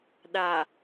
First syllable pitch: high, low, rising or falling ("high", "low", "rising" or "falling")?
low